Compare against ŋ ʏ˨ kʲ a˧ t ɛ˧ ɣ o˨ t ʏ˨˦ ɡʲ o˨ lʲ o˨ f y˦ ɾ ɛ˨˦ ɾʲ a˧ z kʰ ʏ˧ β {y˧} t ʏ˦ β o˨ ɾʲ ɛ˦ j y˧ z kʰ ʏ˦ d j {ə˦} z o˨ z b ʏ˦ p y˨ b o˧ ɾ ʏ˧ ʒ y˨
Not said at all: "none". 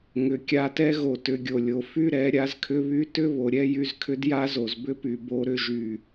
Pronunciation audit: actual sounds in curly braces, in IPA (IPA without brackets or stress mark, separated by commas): y˧, a˦